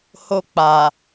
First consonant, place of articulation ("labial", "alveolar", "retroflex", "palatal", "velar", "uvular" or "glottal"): glottal